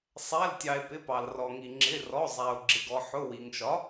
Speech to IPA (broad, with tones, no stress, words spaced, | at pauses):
sˤæ˩˧˩ltʲɑ˩e̯ pɪ˩˧˩pɑ˩l rɔ˩ŋi˩ ŋ͡ǁɪ˩˧˩rɔ˩˧˩zˤæ˩o̯ ɡ͡ǁɪ˩ɡɔ˩ħʊ˩˧˩ wi˩ŋʃɒ˩˥